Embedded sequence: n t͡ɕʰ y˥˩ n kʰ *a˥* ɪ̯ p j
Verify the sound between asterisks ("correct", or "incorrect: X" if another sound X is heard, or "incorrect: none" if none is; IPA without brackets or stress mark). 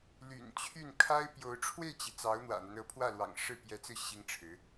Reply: correct